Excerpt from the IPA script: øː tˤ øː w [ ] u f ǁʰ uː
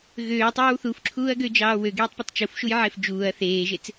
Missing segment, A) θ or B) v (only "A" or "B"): A